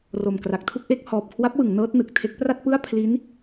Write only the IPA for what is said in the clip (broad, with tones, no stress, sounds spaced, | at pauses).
r o˨˩ m k r a˨˩ k̚ tʰ u˥˩ k̚ ʔ e˥˩ k̚ h ɔː˨˩ p̚ kʰ w a˦˥ p̚ w ɯ˩˦ ŋ n ɤː˦˥ t̚ n ɯ˨˩ k̚ tʰ e˦˥ k̚ p r a˥˩ t̚ p ɯ˥˩ a̯ pʰ l i˦˥ n